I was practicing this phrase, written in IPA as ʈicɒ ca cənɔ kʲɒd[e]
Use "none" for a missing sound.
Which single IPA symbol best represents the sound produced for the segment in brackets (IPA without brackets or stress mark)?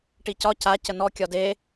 e